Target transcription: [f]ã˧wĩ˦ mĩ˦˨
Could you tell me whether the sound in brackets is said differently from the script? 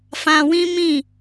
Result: no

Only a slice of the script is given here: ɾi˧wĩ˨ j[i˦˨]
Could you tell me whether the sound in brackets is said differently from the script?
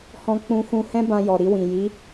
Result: yes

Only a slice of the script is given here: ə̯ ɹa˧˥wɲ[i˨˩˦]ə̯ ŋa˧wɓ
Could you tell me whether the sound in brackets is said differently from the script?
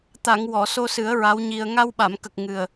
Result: yes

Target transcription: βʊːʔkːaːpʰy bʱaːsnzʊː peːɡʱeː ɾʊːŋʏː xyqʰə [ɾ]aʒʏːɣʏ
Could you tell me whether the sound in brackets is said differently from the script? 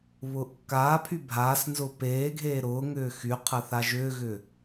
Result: yes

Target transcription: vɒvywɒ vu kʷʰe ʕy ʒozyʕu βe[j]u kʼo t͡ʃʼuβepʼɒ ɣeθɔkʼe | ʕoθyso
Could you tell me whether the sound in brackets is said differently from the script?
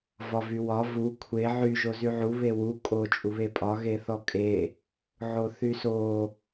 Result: yes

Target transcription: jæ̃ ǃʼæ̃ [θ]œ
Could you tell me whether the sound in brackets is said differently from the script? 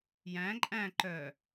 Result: yes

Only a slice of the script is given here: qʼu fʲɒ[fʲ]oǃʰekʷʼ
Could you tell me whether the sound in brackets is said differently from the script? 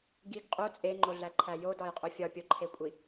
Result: yes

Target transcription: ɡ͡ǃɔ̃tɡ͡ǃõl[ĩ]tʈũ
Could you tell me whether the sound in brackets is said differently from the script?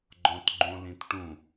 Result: no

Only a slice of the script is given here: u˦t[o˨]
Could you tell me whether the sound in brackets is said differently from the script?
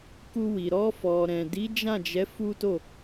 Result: yes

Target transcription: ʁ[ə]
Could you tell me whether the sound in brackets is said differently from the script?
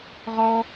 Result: yes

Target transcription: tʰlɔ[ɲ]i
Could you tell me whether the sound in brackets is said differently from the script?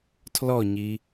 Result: no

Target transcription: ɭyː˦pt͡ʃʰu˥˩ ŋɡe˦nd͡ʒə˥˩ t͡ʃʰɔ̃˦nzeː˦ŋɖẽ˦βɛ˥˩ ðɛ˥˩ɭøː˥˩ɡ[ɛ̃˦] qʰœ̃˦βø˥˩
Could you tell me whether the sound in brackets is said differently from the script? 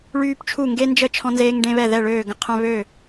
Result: yes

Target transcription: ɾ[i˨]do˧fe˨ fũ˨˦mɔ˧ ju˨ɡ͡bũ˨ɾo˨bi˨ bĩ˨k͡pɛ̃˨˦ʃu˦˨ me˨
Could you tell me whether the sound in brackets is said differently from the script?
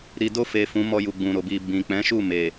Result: no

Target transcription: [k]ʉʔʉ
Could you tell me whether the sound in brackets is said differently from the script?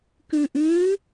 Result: no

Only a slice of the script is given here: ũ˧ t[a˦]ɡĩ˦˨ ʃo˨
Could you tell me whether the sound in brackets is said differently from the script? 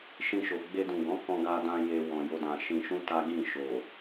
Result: no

